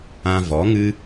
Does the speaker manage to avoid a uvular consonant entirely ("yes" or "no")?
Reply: yes